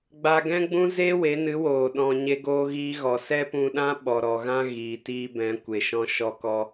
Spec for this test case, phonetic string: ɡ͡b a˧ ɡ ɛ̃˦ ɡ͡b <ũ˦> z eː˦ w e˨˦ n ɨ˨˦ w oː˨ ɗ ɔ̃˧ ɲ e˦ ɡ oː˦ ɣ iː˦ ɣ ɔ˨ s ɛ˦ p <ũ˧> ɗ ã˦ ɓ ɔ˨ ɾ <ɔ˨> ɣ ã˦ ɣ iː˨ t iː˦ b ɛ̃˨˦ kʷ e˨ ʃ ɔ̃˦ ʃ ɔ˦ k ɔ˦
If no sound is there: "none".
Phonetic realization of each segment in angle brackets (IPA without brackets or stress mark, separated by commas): ũ˦, ũ˧, ɔ˨